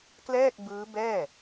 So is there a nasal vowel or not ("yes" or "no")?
no